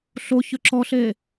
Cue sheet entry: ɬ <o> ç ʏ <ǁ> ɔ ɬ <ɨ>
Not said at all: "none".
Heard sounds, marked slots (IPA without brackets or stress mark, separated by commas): o, ǁ, e